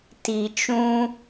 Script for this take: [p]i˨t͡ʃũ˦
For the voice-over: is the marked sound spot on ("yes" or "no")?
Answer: no